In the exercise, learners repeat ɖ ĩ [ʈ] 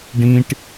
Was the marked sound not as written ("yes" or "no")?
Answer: no